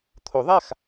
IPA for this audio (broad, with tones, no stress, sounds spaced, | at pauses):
t̪ʰ o˨˩˦ ðˤ a˥˩ x